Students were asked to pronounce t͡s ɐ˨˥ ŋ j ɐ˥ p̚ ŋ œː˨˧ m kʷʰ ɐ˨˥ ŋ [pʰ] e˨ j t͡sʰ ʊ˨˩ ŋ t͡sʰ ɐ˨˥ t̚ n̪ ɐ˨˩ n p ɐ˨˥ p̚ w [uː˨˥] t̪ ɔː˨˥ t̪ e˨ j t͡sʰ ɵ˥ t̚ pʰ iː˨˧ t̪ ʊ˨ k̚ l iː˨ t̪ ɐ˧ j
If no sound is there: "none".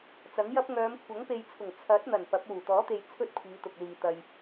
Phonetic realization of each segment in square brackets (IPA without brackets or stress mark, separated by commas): p, uː˨˩